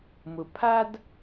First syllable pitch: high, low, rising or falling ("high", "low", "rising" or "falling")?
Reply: low